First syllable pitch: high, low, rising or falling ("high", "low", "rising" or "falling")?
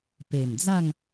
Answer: low